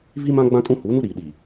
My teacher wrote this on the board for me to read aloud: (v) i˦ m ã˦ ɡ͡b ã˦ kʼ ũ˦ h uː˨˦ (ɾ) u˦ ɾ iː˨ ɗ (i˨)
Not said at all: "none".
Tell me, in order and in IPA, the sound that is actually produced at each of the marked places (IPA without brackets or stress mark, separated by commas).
v, n, i˨